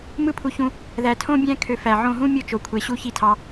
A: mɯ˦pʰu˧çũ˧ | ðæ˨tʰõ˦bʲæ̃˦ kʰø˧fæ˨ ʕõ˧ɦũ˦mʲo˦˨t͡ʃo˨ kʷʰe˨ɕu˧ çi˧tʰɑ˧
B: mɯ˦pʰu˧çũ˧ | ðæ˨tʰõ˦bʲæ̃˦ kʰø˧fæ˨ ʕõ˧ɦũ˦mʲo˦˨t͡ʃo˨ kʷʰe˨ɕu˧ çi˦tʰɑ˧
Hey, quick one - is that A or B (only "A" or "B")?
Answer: B